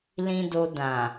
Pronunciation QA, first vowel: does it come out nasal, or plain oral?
nasal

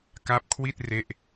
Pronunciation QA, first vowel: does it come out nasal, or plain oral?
oral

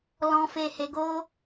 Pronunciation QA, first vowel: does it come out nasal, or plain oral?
nasal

